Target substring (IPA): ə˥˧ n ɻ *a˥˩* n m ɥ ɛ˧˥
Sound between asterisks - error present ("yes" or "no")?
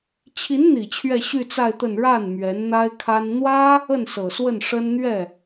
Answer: no